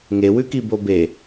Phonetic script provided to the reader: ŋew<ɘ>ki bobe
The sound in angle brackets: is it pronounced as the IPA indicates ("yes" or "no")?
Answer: no